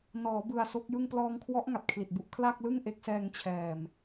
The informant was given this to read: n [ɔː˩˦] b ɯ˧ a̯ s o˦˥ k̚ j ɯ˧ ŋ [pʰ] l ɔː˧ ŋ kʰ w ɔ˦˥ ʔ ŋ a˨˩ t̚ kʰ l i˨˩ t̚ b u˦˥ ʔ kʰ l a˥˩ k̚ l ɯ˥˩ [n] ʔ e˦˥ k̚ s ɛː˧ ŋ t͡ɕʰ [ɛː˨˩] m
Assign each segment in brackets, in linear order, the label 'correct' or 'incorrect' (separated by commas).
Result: correct, incorrect, incorrect, correct